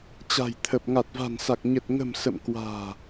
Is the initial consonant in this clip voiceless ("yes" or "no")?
yes